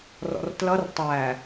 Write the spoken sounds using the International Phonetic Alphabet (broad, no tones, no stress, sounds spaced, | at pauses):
r ɔ̰ r t l ʌ r tˤ æ